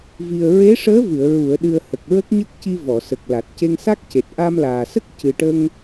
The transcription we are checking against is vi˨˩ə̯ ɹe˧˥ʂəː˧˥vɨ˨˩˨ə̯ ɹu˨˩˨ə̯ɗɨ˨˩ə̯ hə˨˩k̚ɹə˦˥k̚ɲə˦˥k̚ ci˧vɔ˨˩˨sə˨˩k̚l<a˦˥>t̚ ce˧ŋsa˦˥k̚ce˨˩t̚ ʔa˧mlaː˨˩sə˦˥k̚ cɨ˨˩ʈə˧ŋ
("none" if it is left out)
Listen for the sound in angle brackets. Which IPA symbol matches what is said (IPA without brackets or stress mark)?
a˨˩